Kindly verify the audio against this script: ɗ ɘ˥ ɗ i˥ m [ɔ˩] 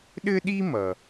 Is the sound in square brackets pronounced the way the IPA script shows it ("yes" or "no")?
no